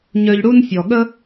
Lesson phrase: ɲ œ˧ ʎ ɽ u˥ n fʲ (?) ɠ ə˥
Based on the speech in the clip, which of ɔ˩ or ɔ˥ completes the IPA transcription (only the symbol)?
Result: ɔ˩